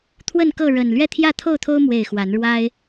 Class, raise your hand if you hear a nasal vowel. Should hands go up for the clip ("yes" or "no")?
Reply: no